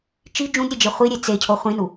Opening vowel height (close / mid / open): close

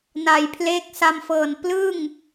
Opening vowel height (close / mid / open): open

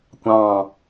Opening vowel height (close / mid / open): open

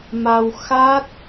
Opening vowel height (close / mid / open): open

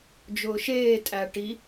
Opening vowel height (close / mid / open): close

